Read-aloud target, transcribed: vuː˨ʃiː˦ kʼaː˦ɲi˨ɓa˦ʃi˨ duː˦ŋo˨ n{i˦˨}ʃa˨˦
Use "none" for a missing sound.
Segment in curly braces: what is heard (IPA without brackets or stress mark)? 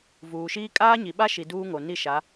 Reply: i˦˨